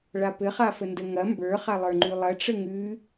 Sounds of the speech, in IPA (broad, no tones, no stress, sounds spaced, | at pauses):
ɭ a p ɘ χ a f ə n d ə ŋ ɐ m b ə˞ χ a lˠ ə˞ ŋ͡ǃ ʉ lˠ ɐ ʈ͡ʂ ə ŋ ʉ